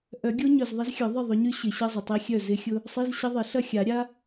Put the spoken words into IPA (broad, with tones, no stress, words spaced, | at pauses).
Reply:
ʔœ˨˩˦ɡʲo˦˥ ɲœ˨zðˤɪ˦˥zxʲœ˨˩˦ ðˤɪ˥˨ ðˤʊ˨˦ɲy˦˥ ɕɪ˨˩˦ɕə˧˥˧zˤə˨ tˤi˦˥xʲœ˥˨ zɪ˦˥xʲʊ˦˥ | sˤi˧˥˧zɕə˦˥ðˤɪ˨˩˦ ɬɐ˥˨xʲa˨˩˦ ɾʲa˦˥